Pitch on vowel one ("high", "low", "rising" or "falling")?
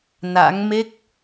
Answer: rising